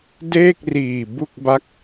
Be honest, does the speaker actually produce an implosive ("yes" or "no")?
no